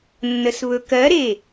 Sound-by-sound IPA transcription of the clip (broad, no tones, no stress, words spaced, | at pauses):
nːəsβɵkɜɾe